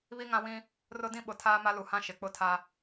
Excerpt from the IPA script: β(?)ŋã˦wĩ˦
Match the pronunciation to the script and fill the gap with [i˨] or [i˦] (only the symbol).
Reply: i˦